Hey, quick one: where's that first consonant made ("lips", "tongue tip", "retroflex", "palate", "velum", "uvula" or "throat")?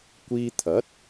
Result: velum